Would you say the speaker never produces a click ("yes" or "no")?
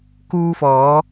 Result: yes